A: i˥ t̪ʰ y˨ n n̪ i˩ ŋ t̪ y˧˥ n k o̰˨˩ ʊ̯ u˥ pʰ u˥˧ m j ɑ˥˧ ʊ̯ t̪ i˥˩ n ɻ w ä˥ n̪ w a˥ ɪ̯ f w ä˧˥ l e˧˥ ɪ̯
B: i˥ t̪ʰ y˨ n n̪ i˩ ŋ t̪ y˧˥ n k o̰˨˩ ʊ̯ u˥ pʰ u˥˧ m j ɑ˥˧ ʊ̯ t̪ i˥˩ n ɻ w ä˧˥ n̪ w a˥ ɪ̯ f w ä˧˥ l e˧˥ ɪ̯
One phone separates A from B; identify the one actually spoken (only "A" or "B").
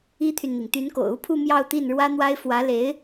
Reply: A